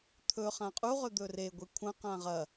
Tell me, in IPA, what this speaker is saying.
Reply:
t̪ʰ ɵ χ ã qʼ u ʁ ɵ d̪ ɵ r e ɡʷ i kʷʰ ɐ̃ q ã ʁ ɐ

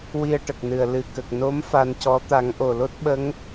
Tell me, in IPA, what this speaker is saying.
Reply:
w i˧ ə̯ ʈ ə˨˩ k̚ n ɨ˨˩ ə̯ l ɨ˨˩ k ə˨˩ k̚ n o˧˥ m f a˧ n c ɔ˧˥ t̪ a˨˩˦ ŋ ʔ o˨˩ l o˦˥ t̚ ɓ ə˧˥ ŋ

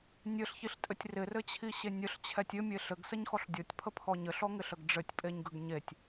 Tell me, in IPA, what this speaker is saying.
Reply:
nʲ ɘ ɬ ç i ɬ tʼ ɘ tʲ r ɪ r ɘ t͡ɕʰ i ɕ e nʲ ə ɬ t͡ɕʰ ɛ tʲ ɘ mʲ e ɬ ɘ ɡ s ə ɲ x ɔ ɬ dʲ ɔ tʲ pʰ ə pʰ ɔ ɲ ɘ ɬ ɔ ŋ ɪ ɬ ə ɡ ɖ͡ʐ ɘ tʲ pʼ e ɲ ɡ ə ɡ ɲ e tʲ

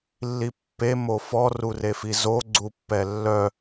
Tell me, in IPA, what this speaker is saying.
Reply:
lː i pː e m o f ɔ r u r e f i z o ɡ͡ǀ u pː ɛ lː œ

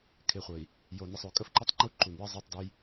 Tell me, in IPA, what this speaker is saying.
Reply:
kʰ ɪ˨ χʷ ə˨ i̯ | j o˨ n ə˨ sˤ o˨ kʼ ə˦ f ǃ ɪ˦ tˤ ŋ͡ǃ u˦˨ ǃ u˨ n j ə˦ zˤ ʉ˦˨ tˤ d ʉ˦ j

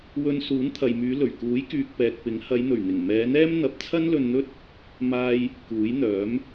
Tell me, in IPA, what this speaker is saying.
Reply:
w ɵ˧ n s uː˨˥ n t̪ʰ ɐ˨ j m yː˨˧ l ɵ˨˩ ɥ k uː˨˥ j k yː˨ k̚ p ɛː˨ k̚ p ɪ˨˥ ŋ h ɐ˨˧ j n̪ ɵ˨˩ ɥ n̪ ɪ˨˩ ŋ m ɛː˨˧ n̪ ɛː˥ m n̪ ɐ˨˥ p̚ t͡sʰ ɐ˥ n l ɵ˧ n n̪ ɵ˥ t̚ | m aː˥ j | k uː˨˥ j n̪ œː˨˥ m

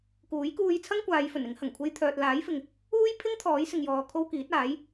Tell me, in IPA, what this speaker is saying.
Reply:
k uː˨˥ j k uː˧ j t͡sʰ ɐ˥ ŋ kʷ aː˨˧ j f ɵ˨˩ n ɪ˨˥ ŋ h ɐ˨˩ ŋ kʷʰ e˥ j t̪ʰ œː˧ t̚ l aː˨˥ j f ɪ˨ ŋ | uː˥ j pʰ ɪ˥ ŋ t̪ʰ ɔː˨˥ j s ɪ˨ ŋ j ɔː˨ kʰ o˧ w k iː˨˥ t̚ aː˨˥ j

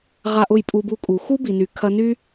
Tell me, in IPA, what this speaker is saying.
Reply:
ʁ a˦ ʔ ʊ˦˨ j pʼ u˧ b u˧ kʼ u˨ x u˦ b i˨ n y˨ kʰ ɐ˧ n y˦

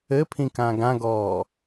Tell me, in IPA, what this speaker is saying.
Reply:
ɘ pʰ ĩ k ã ɡ ã ɡ ɔː

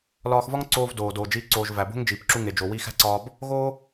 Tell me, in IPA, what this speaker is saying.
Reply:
l ɒː˧ x v ɒ˥ ŋ ǀ oː˧ v d oː˩ d oː˩ d͡ʒ iː˧ ǀ oː˩ ʒ v æ˩ b o̤˥ ŋ d͡ʒ iː˩ p ǁ u˧ ŋ e˩ d͡ʒ o˩ w iː˧ x æ̤˥ ǀ ɒː˧ b | ɣ oː˥

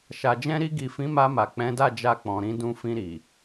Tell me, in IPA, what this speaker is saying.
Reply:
ʃ a˨ d͡ʒ ɛ̃˧ ɾ i˧ ɡ i˨ f ĩ˨˦ m a˧ m a˨ k͡p ɛ̃˨˦ d a˦˨ d͡ʒ a˧ k͡p ɔ̃˨ ɾ ĩ˧ d ũ˧ f ĩ˧ ɾ i˨

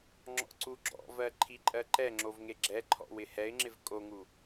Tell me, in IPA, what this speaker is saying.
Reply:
ŋ͡ǁ ɔ̰ ǀ u ɡ͡ǁ ɔ̰ v ɜ ǃʰ i ǃʼ ɜ ǃ ɛ ŋ͡ǁ o v ŋ e ɡ͡ǁ ɛ ǃʰ ɔ̰ w ɪ h ɛ ɪ̯ ŋ͡ǁ ɪ v kʼ o ŋ u

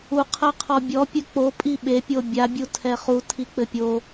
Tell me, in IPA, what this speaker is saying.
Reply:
u qʰ ɐ qʰ ɔ bʲ ɔ pʲ ɘ k͡p o pʼ i ɓ e pʲ o bʲ a bʲ u tʰ ɛ χ u tʰ i k͡p ɘ pʲ o

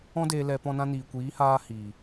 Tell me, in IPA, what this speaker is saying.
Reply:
ɔ̃˦ d eː˧ l ɛ˧ p ɔ̃˧ n ã˧ n iː˨ kʷ iː˨˦ h aː˧ h i˨

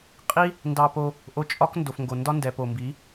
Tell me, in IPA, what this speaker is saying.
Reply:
qʼ i˦ | n d ɑ˧ p o˧ | ʔ o˧ t͡ʃʼ ɒ˦ k n d o˨ f ŋ ɡ o˨ n d ɒ˦ n d ɛ˨ p o˨ m b i˨˦

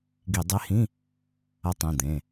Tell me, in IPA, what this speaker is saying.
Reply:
ɡ i˧˩˧ dˤ e˧˥ h ĩ˧˥˧ | ɐ˧˥ tˤ ĩ˩˧˩ d̪ ẽ˩˧˩

